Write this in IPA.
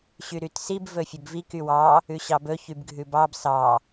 ɕ y ɾ y t s i b v ɵ fʲ ɵ b v i k y w ɑ | ʉ ɕ ɑ b ɵ ç y b ɡʱ ʉ b ɑ b s ɑ

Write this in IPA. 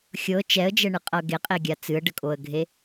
xʲ ɤ t͡ʃ ɛ ə̯ d͡ʒ ɛ ɳ ɨ qʼ ɤ ɡ e qʼ e ɡʲ a t͡s ɨ ə̯ ɖ ə kʼ o ə̯ ɡʱ e

